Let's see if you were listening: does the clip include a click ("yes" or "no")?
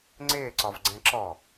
yes